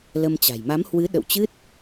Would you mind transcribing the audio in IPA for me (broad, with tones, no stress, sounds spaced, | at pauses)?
l ə˧ m t͡ɕ a̤˨˩ j m a˨˦ m h w ɨ˨˦ ɗ ə̰˧˨ w t͡ɕ ɨ˦˥ t̚